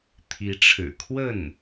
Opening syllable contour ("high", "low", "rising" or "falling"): rising